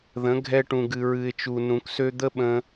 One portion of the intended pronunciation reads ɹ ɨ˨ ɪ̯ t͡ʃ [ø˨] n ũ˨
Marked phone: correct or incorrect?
incorrect: u˨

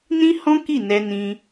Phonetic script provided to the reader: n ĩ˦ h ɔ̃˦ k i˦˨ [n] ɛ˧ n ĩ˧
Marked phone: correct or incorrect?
correct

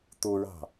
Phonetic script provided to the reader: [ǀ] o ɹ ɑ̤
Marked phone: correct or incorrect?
incorrect: t̪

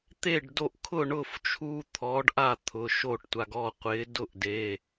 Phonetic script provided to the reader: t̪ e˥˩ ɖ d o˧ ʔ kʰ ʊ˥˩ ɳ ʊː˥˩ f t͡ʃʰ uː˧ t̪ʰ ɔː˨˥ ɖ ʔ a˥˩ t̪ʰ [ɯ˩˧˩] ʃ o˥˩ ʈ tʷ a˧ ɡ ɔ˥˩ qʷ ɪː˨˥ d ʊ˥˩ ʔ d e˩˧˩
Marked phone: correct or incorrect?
incorrect: ʊ˩˧˩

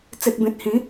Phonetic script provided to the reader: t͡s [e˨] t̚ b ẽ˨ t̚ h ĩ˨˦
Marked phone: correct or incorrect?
correct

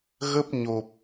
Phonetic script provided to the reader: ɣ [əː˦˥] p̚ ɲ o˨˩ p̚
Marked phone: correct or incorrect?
incorrect: ə˦˥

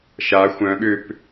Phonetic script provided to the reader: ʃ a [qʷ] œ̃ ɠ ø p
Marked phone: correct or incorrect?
incorrect: xʷ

